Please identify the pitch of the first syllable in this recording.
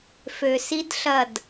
low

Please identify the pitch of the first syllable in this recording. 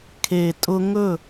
low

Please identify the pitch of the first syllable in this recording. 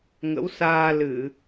rising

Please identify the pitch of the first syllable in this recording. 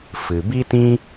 low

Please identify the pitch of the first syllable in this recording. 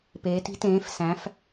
rising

